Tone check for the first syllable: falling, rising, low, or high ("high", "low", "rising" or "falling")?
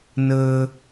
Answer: high